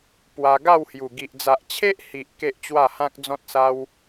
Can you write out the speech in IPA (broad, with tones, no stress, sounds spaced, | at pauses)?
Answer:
p w a˧ ɡ a˥˧ w h j u˨˩ ɡ i˨ ʔ d͡z a˨ ʔ t͡ɕʰ e˦ ʔ h i˨ ʔ k e˦ ʔ t͡ɕ w a˥˧ h ã˦ k̚ d͡z ɔ̃˦ t̚ s a˦ w